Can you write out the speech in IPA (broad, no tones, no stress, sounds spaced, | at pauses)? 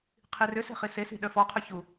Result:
qʰ i r ʏ s e̤ χ i s e s i̤ ɗ œ f ɔ qʰ œ ç u